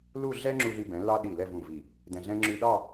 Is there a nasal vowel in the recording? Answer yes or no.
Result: yes